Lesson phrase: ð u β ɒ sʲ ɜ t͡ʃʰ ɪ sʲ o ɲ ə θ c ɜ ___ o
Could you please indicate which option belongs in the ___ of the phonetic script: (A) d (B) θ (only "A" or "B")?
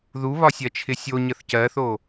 B